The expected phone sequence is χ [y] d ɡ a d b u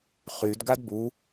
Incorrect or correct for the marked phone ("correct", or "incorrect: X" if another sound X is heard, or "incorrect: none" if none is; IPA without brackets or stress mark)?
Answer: correct